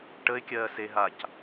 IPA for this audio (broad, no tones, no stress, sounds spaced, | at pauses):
ʈ ə ɪ̯ kʲ ɜː s e ɦ a c